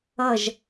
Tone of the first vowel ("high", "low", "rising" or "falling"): falling